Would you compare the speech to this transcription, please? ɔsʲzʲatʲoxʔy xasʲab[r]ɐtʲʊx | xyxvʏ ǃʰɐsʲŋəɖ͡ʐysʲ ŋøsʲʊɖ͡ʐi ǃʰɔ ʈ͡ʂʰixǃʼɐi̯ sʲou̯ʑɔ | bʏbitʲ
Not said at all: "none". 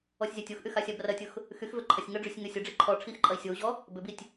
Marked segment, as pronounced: r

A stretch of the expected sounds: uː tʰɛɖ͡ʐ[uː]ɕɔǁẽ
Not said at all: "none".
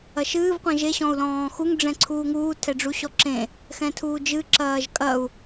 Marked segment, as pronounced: u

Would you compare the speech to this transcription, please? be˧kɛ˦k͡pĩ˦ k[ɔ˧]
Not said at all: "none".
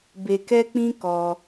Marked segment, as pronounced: ɔ˧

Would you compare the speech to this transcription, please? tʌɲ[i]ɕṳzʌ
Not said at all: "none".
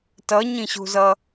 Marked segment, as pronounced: ĩ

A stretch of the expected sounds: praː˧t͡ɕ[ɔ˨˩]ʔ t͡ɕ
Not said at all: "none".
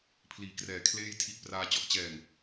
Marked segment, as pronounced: ɔ˦˥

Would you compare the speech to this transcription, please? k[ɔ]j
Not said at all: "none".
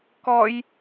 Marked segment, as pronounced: ɔ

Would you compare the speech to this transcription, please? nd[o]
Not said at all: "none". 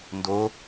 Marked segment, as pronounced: o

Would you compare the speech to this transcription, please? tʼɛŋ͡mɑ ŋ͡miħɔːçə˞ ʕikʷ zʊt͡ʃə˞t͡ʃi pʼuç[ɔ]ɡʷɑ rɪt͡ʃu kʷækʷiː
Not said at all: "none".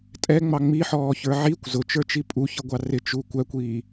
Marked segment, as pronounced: ʌ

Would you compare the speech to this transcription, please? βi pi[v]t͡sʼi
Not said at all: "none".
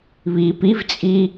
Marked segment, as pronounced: v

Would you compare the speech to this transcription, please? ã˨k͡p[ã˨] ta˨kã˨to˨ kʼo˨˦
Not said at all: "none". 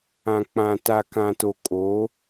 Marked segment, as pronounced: ã˨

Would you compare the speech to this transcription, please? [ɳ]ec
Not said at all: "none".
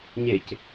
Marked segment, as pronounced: ɲ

